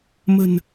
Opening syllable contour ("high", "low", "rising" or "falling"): low